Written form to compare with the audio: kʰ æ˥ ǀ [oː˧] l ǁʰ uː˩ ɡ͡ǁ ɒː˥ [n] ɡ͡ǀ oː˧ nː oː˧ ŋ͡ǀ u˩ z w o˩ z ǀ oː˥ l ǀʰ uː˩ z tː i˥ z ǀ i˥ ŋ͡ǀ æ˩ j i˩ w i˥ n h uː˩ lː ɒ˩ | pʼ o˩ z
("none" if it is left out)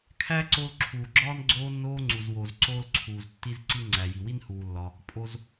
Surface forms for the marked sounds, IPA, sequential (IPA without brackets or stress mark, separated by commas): o˧, n